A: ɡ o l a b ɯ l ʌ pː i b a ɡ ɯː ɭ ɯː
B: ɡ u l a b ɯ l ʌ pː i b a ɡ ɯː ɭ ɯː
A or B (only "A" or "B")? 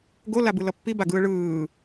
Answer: A